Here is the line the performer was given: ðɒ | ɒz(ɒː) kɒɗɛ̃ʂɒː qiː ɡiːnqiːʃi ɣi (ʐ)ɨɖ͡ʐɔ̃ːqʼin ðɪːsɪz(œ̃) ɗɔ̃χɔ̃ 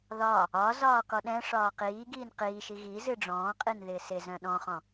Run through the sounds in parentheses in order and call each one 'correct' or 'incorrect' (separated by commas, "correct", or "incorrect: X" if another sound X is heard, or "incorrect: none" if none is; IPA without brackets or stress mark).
correct, incorrect: z, correct